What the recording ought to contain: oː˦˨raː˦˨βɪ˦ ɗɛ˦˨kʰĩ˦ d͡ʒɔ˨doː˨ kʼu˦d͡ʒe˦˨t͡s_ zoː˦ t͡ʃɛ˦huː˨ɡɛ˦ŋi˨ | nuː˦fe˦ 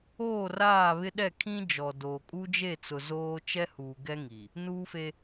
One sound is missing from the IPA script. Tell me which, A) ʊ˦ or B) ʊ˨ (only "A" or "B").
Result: B